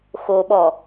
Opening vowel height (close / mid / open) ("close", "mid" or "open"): mid